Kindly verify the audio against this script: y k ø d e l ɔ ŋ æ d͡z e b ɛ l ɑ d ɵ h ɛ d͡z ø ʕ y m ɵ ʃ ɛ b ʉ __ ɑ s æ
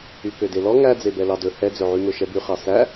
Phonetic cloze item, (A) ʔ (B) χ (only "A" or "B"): B